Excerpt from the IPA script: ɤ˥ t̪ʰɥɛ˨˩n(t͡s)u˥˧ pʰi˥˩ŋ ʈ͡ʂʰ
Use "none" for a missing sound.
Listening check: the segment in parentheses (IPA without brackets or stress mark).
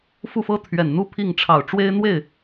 n̪